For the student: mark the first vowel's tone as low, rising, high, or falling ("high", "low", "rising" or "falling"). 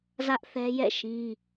high